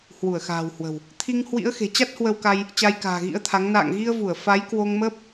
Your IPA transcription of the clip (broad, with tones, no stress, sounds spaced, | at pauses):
h w u˧˩ ə̯ x a̤ː˨˩ w h w ə̤˨˩ w | t̪ʰ i˧ ŋ h w ḭ˧˥ ə̯ x e̤˨˩ t͡ɕ a˦˥ t̚ h w ə˧ w k a˧ j | t͡ɕ a˧ j k a̤ː˨˩ ɣ ḭ˧˥ ə̯ t̪ʰ a˨˦ ŋ n a̰ː˧˨ ŋ ɣ i˧ ə̯ v u˧˩ ə̯ f a˨˦ j k w o˧ ŋ m əː˦˥ p̚